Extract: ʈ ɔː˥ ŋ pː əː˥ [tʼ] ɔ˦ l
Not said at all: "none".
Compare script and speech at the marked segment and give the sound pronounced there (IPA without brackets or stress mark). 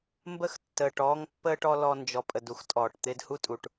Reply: ʈ